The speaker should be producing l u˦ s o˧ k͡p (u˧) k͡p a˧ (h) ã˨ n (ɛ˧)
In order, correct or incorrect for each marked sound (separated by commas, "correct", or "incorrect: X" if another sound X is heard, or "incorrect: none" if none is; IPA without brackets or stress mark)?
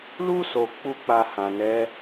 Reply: incorrect: u˦, correct, incorrect: ɛ˨˦